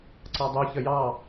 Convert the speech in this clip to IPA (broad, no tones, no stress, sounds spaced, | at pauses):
ǀ ɑ dˤ u ç ə j ɑ